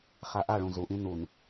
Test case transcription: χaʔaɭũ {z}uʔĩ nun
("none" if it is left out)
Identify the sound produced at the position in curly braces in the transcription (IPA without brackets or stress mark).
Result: z